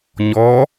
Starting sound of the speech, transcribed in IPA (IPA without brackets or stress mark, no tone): ɲ